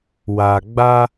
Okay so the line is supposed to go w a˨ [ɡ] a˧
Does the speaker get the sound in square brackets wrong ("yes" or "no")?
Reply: yes